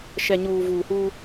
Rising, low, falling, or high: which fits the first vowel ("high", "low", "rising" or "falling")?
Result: low